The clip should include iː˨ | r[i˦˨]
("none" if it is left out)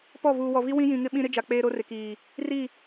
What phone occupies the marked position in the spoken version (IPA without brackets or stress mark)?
i˦˨